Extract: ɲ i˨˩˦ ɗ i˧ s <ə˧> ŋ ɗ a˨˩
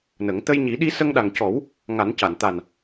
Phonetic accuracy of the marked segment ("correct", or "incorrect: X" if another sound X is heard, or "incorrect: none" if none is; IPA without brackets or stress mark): correct